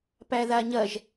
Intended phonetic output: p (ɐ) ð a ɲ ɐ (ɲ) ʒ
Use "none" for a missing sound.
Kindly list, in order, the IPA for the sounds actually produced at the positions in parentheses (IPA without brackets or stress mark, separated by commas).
æ, none